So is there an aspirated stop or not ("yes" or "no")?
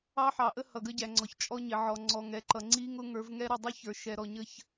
no